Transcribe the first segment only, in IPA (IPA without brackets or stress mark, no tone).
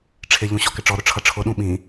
ʈ͡ʂʰ